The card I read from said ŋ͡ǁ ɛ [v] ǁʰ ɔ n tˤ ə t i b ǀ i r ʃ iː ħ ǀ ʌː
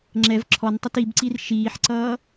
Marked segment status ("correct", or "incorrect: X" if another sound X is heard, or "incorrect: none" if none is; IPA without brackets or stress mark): correct